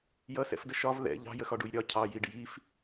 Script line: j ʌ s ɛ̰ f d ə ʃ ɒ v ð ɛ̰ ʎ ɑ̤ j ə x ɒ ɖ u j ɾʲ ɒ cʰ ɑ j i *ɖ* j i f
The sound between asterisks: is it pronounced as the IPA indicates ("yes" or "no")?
yes